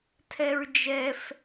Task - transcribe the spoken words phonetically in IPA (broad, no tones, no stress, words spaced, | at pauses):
tʰɛɹd͡ʒɛf